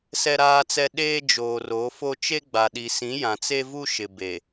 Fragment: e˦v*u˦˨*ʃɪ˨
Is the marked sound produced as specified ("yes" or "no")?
no